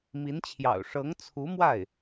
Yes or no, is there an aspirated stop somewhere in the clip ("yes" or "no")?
yes